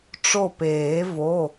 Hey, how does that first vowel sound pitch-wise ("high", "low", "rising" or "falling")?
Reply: falling